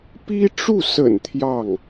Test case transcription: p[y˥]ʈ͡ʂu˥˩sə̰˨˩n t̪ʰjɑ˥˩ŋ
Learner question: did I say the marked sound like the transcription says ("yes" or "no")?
no